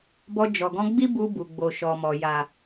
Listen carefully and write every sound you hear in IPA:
bɔ˧d͡ʒɔ˨ɡɔ̃˧ɡ͡bi˦ bu˧bu˨ɡ͡bo˨ ʃɔ˨mɔ˨ ja˨

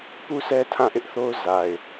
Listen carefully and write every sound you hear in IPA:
pu˦sʰɛ˦ tʰã˦˨ʔɪ˦ʔθo˦ʊ̯ za˨ɪ̯

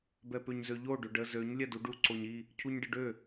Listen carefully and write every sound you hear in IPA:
bɛpøɲzøʎo ɖøɖə zøɲ lʲɛduɖu ǀoɲi | cʰuɲɖəɖø

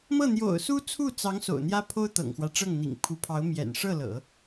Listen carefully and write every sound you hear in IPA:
mɤ˥˩n̪jo̰˨˩ʊ̯su˥ t͡sʰu˥˩t͡sɑ˧˥ŋ so̰˨˩ʊ̯n̪jä˥ pʰo˥ʊ̯t̪ɤ̰˨˩ŋxwä˦ ʈ͡ʂɤ˥˩ŋn̪ḭ˨˩ŋ pʰu˧˥pʰɑ˧˥ʊ̯ mjɛ̰˨˩n ʂɤ˥˩lɤ̰˨˩˦

